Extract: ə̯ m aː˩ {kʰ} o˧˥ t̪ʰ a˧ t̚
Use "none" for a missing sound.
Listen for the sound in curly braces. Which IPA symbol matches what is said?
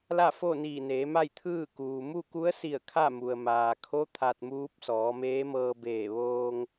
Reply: kʰ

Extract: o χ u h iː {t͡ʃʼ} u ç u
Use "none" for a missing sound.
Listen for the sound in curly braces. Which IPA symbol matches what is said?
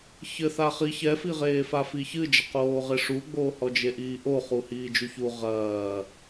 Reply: d͡ʒ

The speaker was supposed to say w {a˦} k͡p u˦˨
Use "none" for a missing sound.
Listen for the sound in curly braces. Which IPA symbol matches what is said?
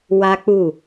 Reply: a˦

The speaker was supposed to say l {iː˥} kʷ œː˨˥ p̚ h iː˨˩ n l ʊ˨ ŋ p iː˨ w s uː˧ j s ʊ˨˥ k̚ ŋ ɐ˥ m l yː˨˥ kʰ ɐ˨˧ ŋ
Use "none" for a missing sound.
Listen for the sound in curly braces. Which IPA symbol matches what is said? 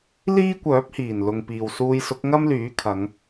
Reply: iː˥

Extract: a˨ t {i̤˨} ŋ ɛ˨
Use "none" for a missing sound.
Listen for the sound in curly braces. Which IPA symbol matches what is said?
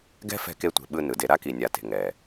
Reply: e̤˨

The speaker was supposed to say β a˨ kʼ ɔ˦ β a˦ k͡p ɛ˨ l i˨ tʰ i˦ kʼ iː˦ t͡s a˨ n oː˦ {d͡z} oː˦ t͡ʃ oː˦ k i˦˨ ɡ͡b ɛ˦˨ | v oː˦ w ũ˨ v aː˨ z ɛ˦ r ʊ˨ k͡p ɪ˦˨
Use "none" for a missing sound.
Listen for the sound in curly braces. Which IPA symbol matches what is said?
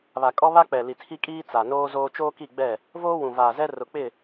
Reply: z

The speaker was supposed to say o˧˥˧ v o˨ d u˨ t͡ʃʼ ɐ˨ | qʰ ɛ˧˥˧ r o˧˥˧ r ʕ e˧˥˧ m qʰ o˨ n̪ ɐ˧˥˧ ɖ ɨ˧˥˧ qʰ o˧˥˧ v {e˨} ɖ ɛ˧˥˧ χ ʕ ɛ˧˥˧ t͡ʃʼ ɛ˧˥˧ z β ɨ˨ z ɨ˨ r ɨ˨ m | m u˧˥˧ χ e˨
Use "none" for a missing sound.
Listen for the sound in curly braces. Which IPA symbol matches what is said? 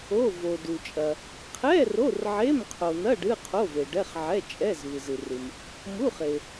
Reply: e˨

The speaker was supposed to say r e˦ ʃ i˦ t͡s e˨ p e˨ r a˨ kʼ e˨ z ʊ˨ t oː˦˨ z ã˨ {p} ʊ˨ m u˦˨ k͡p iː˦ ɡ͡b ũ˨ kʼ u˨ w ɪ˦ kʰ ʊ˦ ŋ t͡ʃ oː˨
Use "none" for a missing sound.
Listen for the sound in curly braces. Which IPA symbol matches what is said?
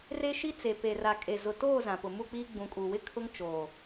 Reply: p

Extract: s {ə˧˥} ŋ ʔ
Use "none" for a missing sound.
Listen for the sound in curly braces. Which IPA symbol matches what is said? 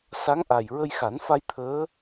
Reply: a˧˥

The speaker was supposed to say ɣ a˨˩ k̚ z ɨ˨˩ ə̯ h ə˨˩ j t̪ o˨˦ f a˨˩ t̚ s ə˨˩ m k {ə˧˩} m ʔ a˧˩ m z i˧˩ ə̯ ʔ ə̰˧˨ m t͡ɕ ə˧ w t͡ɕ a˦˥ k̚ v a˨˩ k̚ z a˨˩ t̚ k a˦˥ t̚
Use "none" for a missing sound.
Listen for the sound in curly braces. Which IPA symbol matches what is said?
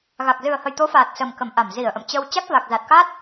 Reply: ə˧˩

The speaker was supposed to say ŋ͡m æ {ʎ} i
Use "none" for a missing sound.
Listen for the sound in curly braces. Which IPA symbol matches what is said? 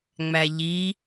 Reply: ʎ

